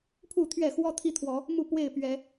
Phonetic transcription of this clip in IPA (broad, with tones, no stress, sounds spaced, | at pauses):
pʰ u˥˨ t̪ʰ ɥ ɛ˥˨ x w ɔ˦ t̪ʰ i˦ t̪ʰ w ɔ˨˦ | m u˥˨ p w e˥˨ ɪ̯ p ɥ ɛ˨˦